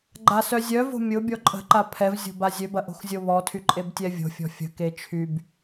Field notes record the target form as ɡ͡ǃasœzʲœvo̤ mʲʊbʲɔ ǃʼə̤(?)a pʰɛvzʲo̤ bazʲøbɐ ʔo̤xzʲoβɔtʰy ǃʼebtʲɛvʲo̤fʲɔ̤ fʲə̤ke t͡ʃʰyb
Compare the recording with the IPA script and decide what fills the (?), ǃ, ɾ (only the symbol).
ǃ